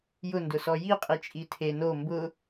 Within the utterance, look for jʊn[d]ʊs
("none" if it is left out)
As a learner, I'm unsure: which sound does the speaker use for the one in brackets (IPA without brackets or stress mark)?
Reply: d